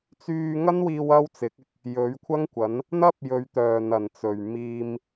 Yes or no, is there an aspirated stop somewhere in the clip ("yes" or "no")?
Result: yes